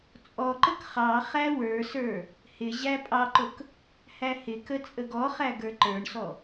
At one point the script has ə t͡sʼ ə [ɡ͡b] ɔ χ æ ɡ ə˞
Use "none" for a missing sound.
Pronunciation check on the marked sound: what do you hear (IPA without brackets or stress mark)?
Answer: ɡ